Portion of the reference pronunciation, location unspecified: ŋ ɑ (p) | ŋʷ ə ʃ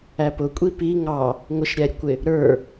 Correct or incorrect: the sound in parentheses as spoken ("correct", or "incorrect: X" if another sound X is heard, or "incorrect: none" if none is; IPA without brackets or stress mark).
incorrect: none